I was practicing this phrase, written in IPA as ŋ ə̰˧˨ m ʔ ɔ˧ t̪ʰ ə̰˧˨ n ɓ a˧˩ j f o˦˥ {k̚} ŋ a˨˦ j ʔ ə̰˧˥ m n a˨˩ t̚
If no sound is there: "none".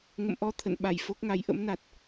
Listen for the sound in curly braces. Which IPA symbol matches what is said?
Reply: k̚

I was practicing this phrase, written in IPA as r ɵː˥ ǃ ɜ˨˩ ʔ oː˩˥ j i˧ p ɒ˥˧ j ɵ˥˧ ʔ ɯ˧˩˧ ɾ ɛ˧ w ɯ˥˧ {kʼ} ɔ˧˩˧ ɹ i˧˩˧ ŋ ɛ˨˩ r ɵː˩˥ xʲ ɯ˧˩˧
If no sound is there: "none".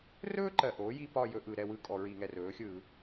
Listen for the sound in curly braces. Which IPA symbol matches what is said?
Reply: kʼ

